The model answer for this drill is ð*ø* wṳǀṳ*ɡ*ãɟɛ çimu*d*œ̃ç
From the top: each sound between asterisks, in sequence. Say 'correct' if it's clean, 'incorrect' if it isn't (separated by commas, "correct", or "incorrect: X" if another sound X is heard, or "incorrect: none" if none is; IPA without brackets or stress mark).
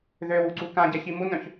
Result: correct, incorrect: k, incorrect: n